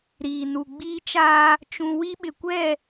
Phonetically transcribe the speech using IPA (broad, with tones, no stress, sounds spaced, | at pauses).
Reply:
ɾ iː˨ n u˨ ɡ͡b iː˦ t͡ʃ aː˦ | t͡ʃ ũ˦ w i˦ ɓ ɪ˨ kʷ ɛ˦˨